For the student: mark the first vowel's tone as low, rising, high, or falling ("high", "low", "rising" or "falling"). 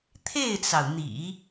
falling